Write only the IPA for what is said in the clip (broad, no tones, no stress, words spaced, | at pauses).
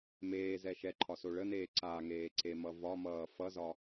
meːzɛ ʃɛǃʰɒso ɭəneː ǀaŋeːǀemʌ vɒmʌː fʌzɒ